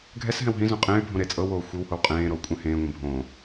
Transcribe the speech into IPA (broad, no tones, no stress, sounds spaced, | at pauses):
ɡʱ ɛ s ɦ ɛ̃ w ɦ ĩ z õ qʼ ẽː y̯ bʱ õ ɾ e t͡sʼ ɤ w oː xʷ i w h o w qʼ ẽː ɾ o w kʷʼ ɛ̃ h ẽː ŋʷ ẽ bʱ õː